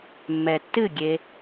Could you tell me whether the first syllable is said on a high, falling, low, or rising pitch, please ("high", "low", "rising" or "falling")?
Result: low